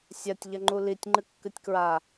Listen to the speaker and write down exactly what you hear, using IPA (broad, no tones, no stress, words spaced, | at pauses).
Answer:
sʲatʲʎɐŋ͡ǃu litʲŋ͡ǃɨkːɨtʲkɹa